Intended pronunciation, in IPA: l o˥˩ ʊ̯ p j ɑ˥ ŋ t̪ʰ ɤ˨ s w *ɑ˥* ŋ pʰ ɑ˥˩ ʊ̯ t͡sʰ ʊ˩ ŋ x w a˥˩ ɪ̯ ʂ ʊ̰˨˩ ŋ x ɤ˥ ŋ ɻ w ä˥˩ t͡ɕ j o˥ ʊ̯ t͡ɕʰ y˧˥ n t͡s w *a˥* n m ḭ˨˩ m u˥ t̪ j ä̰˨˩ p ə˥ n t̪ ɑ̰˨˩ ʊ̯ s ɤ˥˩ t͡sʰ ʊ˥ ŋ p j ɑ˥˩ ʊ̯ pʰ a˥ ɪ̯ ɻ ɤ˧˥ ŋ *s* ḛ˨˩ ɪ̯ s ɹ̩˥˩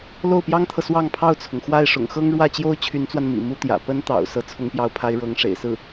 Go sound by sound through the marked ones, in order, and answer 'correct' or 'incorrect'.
incorrect, incorrect, incorrect

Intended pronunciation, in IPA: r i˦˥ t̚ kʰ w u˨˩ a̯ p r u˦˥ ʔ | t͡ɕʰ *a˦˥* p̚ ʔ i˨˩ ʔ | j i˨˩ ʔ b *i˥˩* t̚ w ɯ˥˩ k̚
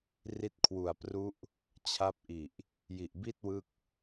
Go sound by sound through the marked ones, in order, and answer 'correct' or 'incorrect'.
correct, correct

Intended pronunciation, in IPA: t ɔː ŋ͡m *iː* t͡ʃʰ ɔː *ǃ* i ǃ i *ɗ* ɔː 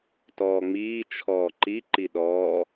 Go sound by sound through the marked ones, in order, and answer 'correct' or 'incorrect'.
correct, correct, correct

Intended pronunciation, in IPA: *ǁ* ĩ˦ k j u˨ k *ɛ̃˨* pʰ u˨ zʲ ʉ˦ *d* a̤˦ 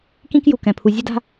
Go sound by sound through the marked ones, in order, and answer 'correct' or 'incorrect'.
incorrect, correct, correct

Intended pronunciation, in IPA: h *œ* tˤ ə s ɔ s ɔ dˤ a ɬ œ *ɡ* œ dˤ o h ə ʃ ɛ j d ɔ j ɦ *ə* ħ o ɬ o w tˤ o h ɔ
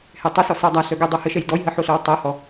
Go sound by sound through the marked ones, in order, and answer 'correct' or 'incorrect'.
incorrect, correct, correct

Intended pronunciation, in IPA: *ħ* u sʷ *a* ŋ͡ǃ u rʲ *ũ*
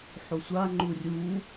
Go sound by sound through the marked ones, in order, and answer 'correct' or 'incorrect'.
correct, correct, incorrect

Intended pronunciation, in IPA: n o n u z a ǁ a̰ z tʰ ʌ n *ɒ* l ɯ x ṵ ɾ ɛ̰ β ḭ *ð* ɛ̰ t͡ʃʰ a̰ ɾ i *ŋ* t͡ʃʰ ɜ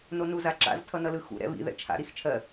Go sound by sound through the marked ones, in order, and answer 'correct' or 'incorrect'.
incorrect, correct, incorrect

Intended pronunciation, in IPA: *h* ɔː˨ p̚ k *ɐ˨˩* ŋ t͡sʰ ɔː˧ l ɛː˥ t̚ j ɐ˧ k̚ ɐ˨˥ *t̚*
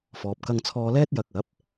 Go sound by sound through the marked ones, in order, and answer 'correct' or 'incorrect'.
incorrect, incorrect, incorrect

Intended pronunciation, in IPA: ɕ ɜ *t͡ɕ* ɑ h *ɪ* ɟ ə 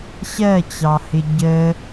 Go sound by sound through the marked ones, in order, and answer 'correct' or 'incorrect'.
correct, correct

